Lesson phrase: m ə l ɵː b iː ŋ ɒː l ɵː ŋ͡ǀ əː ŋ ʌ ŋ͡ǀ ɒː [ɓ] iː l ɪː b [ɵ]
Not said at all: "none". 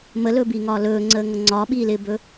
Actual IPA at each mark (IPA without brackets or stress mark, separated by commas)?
ɓ, ɵ